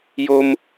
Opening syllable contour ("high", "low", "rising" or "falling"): high